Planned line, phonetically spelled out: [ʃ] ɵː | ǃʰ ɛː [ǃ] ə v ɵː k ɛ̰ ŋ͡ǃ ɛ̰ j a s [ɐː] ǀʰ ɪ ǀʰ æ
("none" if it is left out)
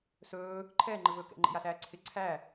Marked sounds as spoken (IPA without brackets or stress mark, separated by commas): s, ŋ͡ǃ, æː